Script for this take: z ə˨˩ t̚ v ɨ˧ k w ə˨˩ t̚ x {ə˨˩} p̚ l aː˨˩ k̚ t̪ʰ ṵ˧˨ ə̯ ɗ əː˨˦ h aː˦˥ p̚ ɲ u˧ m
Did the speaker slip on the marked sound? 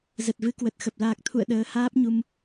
no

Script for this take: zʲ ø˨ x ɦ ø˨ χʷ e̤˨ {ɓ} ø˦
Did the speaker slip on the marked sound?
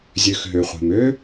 yes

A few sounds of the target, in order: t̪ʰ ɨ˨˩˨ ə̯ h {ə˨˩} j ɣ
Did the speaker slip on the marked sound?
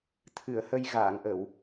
yes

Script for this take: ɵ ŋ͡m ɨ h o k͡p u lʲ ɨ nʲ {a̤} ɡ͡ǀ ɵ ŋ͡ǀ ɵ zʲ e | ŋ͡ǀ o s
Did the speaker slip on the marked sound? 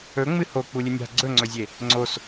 no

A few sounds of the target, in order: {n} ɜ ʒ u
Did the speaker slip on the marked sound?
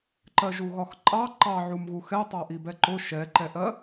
yes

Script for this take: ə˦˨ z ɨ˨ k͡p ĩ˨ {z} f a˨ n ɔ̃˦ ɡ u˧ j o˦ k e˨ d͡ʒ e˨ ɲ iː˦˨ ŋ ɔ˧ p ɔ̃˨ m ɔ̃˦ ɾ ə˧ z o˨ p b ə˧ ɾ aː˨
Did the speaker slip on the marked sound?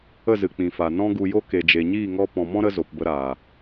yes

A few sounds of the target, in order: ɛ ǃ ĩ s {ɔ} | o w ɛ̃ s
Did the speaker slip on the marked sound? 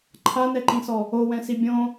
no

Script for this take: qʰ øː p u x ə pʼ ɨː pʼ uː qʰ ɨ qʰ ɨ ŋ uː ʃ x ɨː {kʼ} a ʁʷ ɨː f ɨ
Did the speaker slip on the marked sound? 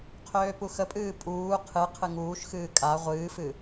no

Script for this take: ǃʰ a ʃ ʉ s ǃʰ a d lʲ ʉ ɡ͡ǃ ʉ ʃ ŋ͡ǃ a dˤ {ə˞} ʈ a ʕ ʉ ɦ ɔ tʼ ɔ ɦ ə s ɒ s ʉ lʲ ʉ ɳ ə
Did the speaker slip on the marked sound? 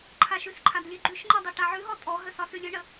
no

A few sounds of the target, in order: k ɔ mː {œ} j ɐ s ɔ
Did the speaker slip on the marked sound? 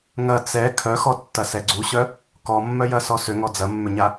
no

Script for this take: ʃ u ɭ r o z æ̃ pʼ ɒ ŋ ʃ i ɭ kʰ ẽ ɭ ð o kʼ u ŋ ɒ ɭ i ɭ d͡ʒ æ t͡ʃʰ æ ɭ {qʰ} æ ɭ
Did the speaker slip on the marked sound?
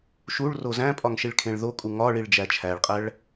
yes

